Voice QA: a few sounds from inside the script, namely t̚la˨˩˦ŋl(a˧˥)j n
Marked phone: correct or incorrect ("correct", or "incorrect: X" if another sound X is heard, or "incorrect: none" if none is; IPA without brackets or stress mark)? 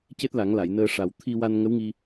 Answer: incorrect: a˨˩˨